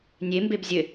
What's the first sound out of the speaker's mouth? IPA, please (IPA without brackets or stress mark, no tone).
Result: nʲ